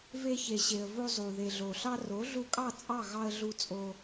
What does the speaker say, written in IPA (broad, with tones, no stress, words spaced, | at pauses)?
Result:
ve˧çe˨ɕe˨ə̯ vo˧zˤu˨ ðe˨ɮo˨ɬɑ˦ ro˨˦ɮu˧kʼɑ˦˨ t͡sʼɑ˦˨ɣɑ˧ə̯ɮu˧ t͡sʼo˧